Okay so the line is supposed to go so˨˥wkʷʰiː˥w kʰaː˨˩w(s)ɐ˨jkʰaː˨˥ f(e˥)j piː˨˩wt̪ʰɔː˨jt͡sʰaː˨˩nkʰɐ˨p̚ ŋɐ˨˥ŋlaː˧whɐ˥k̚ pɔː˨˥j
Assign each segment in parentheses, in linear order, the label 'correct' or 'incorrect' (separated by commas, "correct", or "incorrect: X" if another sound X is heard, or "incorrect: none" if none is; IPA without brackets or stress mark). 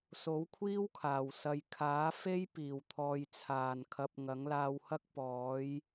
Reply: correct, correct